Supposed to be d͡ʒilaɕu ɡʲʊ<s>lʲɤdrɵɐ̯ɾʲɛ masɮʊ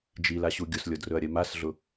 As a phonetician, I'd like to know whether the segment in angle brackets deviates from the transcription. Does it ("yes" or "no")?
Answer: no